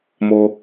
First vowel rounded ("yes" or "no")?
yes